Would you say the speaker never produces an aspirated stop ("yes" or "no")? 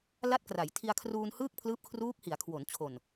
no